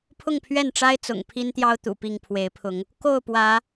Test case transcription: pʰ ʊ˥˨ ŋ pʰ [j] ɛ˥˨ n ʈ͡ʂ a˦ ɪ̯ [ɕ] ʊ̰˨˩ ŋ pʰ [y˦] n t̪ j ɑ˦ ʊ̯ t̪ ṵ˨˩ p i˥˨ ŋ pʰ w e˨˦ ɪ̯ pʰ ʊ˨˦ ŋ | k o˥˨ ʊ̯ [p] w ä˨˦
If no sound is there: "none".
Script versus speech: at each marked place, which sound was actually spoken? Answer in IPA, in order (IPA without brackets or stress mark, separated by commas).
ɥ, t͡s, i˦, p